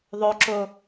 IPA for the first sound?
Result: ðˤ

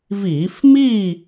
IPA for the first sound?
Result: v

